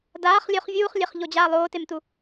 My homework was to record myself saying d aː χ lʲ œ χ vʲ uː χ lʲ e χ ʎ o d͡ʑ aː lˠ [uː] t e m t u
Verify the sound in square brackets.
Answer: incorrect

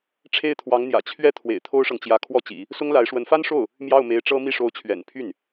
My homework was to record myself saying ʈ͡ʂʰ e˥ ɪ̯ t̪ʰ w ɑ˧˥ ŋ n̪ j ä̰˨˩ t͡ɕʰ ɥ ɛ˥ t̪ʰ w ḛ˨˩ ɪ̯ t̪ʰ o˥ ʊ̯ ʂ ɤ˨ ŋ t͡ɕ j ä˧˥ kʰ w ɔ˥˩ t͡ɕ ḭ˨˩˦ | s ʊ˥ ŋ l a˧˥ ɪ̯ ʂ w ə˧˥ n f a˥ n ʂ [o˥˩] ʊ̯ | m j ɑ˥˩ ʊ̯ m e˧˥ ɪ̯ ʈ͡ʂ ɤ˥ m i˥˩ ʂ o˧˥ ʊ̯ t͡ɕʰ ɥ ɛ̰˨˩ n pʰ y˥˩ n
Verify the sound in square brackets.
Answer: correct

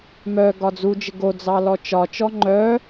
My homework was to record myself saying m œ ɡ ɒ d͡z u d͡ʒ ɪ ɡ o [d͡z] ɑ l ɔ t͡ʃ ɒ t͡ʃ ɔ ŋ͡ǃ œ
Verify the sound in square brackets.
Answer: correct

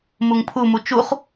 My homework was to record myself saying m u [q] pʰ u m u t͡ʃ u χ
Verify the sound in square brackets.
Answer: incorrect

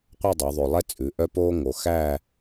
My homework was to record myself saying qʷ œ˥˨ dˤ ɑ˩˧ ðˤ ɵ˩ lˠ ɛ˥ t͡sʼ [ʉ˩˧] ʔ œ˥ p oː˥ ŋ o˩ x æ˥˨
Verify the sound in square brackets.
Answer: correct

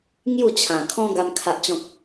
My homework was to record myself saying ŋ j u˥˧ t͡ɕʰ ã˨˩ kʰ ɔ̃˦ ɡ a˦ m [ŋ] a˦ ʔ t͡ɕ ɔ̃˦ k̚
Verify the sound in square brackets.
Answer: incorrect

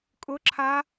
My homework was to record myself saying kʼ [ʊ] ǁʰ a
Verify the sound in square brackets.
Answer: correct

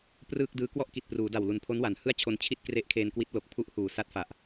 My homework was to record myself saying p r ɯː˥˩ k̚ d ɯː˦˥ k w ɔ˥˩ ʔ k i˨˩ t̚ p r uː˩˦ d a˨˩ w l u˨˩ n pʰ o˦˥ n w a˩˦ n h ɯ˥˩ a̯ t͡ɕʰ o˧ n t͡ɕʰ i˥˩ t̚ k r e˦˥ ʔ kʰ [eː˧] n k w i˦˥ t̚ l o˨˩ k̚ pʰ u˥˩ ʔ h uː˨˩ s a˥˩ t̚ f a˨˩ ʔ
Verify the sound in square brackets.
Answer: correct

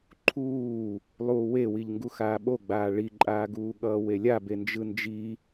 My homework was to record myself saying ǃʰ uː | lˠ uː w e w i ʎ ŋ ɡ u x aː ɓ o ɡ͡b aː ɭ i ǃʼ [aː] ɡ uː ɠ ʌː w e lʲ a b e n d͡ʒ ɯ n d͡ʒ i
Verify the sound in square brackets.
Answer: correct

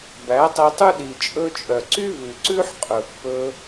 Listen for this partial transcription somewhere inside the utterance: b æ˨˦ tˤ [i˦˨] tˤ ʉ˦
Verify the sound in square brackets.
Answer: incorrect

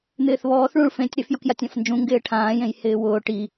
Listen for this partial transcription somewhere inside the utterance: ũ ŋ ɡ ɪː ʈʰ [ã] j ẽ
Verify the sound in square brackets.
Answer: incorrect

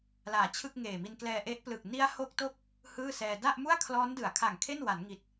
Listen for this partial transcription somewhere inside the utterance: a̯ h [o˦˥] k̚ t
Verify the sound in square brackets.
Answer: correct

